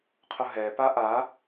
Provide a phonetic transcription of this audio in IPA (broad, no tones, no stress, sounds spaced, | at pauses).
qʰ ʊ ɦ ɛ p a ʔ a